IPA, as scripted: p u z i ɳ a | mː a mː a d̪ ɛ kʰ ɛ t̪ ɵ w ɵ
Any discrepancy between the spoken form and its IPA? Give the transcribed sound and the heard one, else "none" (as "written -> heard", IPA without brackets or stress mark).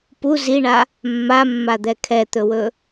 none